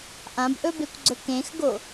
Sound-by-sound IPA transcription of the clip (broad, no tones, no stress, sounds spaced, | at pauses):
ʔ ã b ʔ ɵ b e kʷ ɡ͡ǀ ɵ k ẽ x ɡ o